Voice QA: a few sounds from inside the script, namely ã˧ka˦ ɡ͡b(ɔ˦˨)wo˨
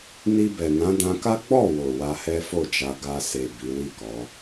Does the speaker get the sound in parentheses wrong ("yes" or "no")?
no